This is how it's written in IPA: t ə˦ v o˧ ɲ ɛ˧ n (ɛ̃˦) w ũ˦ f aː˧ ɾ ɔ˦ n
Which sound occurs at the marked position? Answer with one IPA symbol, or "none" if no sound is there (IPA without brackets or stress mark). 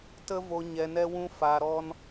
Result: ɛ˦